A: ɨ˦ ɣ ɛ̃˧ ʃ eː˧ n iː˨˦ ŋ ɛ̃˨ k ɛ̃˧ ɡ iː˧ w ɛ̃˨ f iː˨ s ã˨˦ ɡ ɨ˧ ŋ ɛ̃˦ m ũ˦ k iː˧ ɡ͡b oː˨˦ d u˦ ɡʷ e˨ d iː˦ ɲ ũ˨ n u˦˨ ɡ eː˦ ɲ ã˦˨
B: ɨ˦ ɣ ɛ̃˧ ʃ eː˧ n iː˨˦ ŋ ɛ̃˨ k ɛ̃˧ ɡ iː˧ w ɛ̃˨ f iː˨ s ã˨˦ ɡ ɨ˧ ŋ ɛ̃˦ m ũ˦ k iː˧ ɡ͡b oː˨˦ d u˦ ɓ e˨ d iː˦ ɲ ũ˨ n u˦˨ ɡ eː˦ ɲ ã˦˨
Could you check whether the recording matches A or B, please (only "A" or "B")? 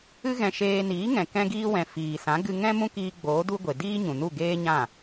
A